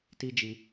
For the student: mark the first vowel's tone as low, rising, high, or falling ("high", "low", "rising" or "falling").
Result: high